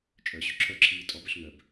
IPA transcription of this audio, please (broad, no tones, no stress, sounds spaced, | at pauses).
t͡ʃʼ œ ɕ y ǁʰ œ ǁʰ iː tʼ ɔ b œ ɬ ŋ œ b